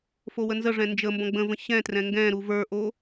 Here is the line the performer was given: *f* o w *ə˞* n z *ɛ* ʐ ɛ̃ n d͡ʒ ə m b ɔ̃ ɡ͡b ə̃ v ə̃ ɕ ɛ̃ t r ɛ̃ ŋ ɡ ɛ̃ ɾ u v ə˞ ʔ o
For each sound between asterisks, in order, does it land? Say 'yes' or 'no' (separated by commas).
yes, no, no